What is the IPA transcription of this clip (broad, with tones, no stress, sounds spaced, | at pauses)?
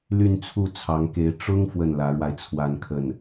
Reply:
l y˥˧ n t͡sʰ u˥˩ t͡sʰ ɑ˧˥ ŋ k e˧˥ ɪ̯ ʈ͡ʂ ʊ˥ ŋ f w ə˥˩ n l ä˧˥ ɻ w a˧ ɪ̯ t͡sʰ w a˥˧ n kʰ ə˥˩ n